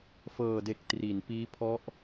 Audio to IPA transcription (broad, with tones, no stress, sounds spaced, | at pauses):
f ɤː˨˩ d e˨˩ k̚ t r i˩˦ n p iː˦˥ pʰ ɔ˦˥ ʔ